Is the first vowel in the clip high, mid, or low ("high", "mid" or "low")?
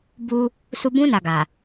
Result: high